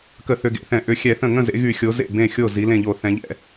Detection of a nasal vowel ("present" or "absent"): present